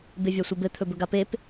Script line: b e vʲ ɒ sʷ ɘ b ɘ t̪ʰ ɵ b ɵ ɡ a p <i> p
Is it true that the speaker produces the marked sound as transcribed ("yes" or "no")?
no